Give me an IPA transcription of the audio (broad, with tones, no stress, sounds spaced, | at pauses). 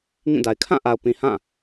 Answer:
ŋ ĩ˦˨ d a˨ ɪ̯ kʰ ã˦˨ ʔ a˨ ʊ̯ p ĩ˨ h ã˦˨